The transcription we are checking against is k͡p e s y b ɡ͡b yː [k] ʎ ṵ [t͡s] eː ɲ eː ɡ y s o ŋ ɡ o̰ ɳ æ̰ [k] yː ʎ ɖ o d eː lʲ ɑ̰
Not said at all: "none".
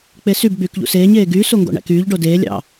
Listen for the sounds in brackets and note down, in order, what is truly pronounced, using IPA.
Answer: k, s, k

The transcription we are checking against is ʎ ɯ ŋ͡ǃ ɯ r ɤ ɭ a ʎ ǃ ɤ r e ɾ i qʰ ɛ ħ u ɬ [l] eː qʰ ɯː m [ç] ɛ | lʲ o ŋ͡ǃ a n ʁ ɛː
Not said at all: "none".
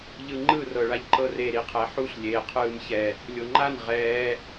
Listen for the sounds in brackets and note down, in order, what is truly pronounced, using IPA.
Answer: lʲ, ç

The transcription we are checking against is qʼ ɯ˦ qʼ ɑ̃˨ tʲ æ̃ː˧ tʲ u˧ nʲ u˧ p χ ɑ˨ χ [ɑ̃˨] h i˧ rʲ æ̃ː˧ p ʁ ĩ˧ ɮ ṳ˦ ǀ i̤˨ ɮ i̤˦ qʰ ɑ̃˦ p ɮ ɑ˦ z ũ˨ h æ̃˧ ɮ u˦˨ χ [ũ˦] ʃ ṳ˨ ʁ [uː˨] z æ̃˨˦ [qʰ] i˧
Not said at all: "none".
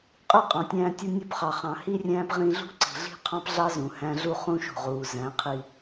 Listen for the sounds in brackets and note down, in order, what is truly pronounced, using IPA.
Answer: ɑ̃˨, ũ˦, uː˨, qʰ

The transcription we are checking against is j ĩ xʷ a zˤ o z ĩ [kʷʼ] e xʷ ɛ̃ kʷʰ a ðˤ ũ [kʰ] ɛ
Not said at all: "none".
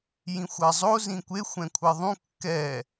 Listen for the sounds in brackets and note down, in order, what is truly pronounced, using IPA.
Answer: kʷ, kː

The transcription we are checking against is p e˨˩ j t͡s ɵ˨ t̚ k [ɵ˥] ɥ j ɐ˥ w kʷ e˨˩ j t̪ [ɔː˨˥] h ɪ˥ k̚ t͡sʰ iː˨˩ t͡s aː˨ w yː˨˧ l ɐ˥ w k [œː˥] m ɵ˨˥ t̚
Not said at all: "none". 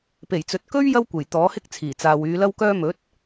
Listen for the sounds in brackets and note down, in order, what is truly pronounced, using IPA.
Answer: ɵ˥, ɔː˨˥, œː˥

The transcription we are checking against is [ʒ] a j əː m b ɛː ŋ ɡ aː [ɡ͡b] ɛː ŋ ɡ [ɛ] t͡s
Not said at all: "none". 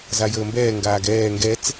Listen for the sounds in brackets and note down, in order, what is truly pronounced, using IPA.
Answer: z, ɡ, ɛ

